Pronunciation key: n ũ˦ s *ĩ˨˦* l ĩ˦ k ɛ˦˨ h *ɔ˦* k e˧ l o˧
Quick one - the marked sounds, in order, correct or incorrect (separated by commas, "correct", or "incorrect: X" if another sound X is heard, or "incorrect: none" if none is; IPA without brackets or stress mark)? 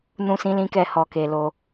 incorrect: ĩ˦, incorrect: ɔ˧